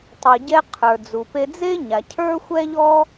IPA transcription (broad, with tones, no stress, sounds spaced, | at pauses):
tˤ ʊ˩ ɟ ɛ˧ qʰ ə˞˩ d͡z u˩ p e˧ d͡z e˥ ɲ a˩ cʰ ə˞˥ xʷ ɛ˥ ʎ ɔ˥